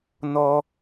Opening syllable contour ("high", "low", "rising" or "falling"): low